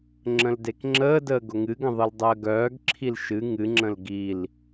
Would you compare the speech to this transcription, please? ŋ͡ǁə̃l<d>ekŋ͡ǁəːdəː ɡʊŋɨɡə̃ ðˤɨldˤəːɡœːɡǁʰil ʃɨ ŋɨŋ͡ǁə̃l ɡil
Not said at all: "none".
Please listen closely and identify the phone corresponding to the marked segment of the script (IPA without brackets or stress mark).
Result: d